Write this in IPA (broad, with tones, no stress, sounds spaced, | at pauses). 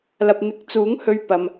l ɐ˨ p̚ n̪ ɪ˨˥ k̚ t͡s uː˨˥ ŋ h ɵ˧ ɥ p ɐ˨ m